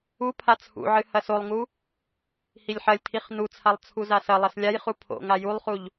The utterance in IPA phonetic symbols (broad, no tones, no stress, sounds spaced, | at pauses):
u pʰ a t͡sʰ ṵ ʕ ɨ h ɐ s o lˠ ŋ u | h i lʲ ħ ɐ lʲ tʰ i χ n u t͡sʰ a lˠ t͡sʰ u z a s ɐ lˠ ɐ s lʲ a j χ u pʰ o̰ ŋ a j u lˠ χ u ʎ